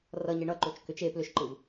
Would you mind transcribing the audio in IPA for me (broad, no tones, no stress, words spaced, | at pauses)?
rʌɲe ɳʌǃot͡ʃ kʏt͡ʃ e plʏʃǃɯv